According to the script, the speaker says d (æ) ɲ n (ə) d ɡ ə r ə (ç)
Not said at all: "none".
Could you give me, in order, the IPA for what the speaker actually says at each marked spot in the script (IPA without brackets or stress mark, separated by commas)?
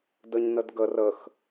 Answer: ə, ə, x